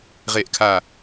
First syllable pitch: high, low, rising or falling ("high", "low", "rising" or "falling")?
falling